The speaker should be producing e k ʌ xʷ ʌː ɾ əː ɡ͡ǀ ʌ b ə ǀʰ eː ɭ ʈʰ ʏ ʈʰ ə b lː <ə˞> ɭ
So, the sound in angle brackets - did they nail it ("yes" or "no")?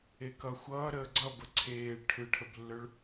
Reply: yes